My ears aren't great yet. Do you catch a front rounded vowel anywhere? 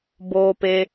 no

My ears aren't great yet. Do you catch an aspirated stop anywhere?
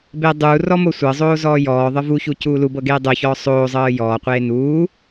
no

